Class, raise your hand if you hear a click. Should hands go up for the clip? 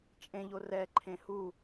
yes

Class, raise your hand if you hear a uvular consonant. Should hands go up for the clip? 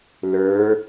no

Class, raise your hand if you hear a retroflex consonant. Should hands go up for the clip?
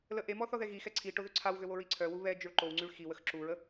yes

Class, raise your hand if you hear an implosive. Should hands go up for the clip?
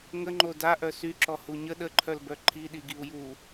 yes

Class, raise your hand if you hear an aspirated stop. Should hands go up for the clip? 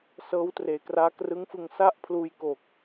yes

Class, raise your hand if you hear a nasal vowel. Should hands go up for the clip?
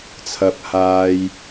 no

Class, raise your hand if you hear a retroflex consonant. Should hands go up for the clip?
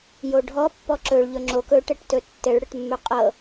yes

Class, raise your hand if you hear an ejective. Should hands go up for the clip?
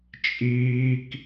yes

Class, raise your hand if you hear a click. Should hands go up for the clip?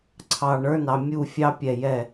yes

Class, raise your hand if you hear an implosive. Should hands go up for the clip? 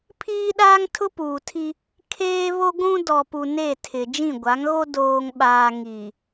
yes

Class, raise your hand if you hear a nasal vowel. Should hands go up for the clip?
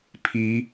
no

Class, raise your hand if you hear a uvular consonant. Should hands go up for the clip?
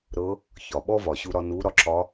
no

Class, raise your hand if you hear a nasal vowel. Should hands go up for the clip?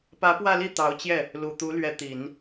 no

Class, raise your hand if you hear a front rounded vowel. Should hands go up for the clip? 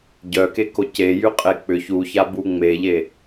yes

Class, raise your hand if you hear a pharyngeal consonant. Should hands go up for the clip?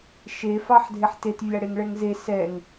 yes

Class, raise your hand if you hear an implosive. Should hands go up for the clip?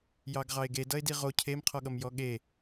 yes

